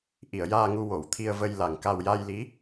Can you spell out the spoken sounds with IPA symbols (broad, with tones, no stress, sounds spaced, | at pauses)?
ʔ i˨˩˨ ə̯ j aː˧ ŋ u˧ w o˨˩˨ w t̪ʰ i˧ ə̯ v ə˧ j l a˨˩ ŋ k a˧ w j a˧ j l i˧˥